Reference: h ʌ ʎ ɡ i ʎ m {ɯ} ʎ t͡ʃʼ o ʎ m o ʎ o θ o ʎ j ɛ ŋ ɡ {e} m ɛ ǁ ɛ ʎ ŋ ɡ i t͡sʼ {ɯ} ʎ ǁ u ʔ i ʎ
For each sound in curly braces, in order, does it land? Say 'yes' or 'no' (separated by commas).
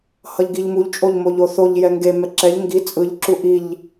no, yes, yes